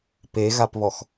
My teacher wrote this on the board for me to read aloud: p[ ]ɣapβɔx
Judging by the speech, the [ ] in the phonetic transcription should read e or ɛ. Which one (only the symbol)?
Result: e